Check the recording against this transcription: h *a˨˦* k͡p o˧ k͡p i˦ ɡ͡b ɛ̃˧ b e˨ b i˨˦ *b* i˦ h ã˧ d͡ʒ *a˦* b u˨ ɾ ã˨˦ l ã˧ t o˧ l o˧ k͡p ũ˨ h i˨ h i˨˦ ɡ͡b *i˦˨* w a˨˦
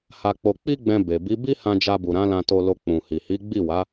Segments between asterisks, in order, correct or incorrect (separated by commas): incorrect, correct, incorrect, correct